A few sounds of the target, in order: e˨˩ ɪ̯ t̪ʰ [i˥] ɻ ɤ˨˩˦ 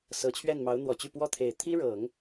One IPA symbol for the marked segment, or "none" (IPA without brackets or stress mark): i˥